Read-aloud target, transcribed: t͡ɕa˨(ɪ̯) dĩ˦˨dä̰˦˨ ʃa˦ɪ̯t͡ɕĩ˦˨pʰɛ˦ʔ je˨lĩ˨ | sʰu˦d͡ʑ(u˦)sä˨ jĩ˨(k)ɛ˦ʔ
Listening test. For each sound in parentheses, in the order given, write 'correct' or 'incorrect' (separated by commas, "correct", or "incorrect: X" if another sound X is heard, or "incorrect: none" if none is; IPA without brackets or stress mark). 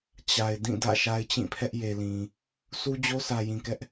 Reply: correct, incorrect: o˦, correct